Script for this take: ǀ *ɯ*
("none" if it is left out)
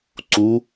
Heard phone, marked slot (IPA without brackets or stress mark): u